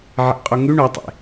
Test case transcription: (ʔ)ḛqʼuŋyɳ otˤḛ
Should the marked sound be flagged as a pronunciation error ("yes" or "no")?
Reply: yes